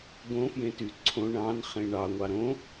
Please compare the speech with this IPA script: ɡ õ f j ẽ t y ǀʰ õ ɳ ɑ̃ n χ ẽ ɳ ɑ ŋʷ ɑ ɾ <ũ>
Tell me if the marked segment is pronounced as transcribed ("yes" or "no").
no